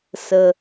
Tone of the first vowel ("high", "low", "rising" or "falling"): low